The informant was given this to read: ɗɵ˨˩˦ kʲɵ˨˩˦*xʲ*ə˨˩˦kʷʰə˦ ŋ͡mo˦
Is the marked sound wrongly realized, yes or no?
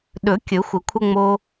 yes